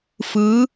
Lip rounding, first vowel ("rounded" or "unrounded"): unrounded